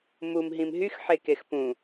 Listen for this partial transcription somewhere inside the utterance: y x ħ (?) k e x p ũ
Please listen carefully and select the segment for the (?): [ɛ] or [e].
e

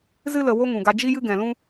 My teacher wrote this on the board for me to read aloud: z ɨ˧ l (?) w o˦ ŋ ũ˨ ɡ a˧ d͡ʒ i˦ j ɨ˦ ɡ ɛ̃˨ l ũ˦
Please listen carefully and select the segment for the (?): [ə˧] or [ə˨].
ə˨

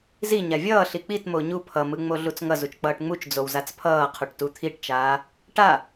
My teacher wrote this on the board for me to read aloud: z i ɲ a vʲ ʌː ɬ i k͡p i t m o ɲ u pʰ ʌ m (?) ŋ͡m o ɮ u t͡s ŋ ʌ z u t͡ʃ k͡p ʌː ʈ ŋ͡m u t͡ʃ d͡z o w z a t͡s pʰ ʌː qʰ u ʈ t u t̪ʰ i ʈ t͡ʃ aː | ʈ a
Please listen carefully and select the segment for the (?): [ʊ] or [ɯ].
ɯ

